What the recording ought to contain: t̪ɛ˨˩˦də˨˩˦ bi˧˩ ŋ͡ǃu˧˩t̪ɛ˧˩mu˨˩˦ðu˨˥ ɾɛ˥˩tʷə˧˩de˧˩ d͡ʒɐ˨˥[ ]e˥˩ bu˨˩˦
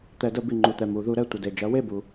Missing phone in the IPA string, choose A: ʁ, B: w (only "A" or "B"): B